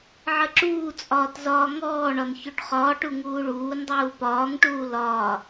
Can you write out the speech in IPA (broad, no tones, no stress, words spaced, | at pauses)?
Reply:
ʕəǁuːt͡sʼɒːt zɒːŋɔːɳɒn çoʈχɒːʈu ŋuːɭuːndˤuː pɒːŋʈuː lɒː